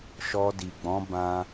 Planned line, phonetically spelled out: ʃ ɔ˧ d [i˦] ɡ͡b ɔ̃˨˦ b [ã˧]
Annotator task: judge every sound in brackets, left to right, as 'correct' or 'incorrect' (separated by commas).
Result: incorrect, correct